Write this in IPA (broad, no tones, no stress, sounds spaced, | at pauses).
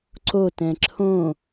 ǀ o t ɛ̃ ǁʰ õ